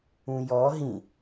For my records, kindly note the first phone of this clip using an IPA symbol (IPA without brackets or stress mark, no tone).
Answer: ũ